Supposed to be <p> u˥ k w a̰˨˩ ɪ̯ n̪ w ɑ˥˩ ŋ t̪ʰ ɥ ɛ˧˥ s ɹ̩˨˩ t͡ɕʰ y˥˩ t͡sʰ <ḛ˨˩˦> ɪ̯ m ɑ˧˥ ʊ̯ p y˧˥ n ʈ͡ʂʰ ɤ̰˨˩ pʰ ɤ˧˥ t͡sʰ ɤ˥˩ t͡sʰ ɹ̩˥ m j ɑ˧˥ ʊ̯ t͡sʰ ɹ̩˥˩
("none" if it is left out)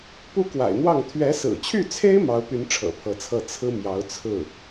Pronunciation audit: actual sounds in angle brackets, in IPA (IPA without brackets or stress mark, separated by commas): p, e˥